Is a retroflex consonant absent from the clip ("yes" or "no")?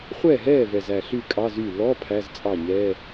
yes